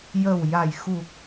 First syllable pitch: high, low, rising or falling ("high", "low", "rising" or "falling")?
low